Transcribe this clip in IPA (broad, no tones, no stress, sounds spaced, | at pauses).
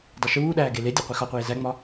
dˤ o ʃ uː ɗ æː ɡ e l e dʲ ɒ qʷ i x ɒ qʷ eː z æ ŋ͡m ɒ